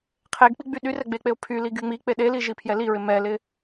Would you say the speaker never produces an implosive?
no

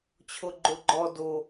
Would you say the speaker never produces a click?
no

